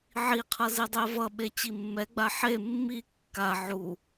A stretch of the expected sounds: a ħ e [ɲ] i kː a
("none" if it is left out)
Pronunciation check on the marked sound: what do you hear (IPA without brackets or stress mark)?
mː